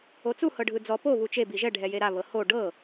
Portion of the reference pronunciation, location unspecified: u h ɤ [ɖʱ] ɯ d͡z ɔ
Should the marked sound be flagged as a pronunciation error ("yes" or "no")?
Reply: no